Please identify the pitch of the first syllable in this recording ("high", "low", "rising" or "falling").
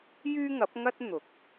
high